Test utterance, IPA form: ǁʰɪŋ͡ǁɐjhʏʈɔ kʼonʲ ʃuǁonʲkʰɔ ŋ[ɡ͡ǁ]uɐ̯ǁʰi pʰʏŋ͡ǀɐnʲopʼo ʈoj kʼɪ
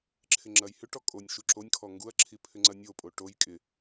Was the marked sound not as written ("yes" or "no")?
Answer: yes